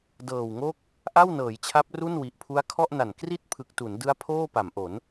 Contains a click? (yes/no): no